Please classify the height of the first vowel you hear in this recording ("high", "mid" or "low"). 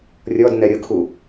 mid